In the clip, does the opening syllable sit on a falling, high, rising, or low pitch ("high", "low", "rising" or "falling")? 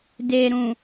low